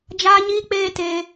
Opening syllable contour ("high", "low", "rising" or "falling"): high